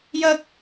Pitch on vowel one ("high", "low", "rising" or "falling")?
high